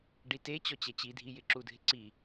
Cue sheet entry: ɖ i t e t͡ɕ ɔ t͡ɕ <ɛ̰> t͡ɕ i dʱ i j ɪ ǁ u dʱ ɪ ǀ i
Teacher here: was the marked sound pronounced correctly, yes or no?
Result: no